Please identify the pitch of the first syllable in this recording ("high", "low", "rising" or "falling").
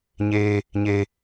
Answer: high